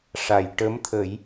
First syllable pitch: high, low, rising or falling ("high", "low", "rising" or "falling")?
low